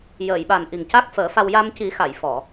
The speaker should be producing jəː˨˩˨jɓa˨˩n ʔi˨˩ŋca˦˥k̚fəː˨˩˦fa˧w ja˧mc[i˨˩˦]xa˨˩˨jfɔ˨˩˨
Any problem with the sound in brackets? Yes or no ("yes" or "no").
no